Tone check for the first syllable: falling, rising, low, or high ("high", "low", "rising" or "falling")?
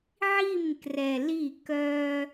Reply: falling